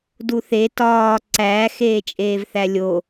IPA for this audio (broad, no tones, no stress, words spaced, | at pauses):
duθe tɒː ǀæ xeːt͡ʃʼeːvθælʲo